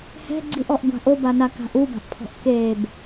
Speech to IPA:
hɛ̤ɡ͡ǀiʔɔʔ ɡʷa̤ʔobana ka̤ʔuba̤ʔpʰɔ̤ʔ keb

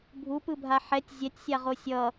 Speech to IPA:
bʱupɯbʱa ħɛtʲ zʲɛtʲsʲaʁo sʲʌ

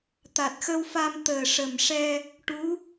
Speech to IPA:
t̪a˨˩t̚xə˧wfa˧m t̪əː˨˩ʂə˨˩mʂɛ˧ | ʈu˧˥

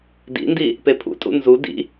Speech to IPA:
dḭndi | pepʰṵtʼṵ nzu dḭ

